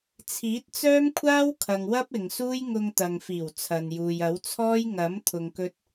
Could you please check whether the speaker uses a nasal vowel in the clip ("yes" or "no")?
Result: no